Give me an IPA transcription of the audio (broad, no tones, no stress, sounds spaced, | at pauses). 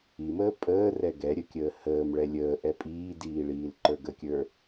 i m əː pʼ əː r ɛ ɡ ɛ ɾʲ ə kʲ əː h əː m ɭ ɛ lʲ əː ʔ ɛ pʼ iː d iː ɭ iː l ǃ ə˞ ɡ ə kʲ ə˞